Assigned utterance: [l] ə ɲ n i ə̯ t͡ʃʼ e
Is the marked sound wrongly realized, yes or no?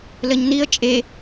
no